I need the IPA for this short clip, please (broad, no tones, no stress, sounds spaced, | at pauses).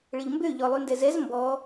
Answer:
ɭ ə ʎ m b ø ʎ ɔ lˠ y n d ɛ z ɛ z m b ɔ